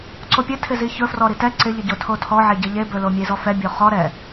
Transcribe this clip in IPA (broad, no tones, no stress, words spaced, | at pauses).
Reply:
ǀopʲɘ tʰɪziçɵfrɔ ɾitɛ ǀɪʎəɟo tʰotʰɔʕe ɟəʎebɵ lomʲezɔfɛ bʲoχɔ ɾɛ